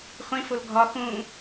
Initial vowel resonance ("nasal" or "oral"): nasal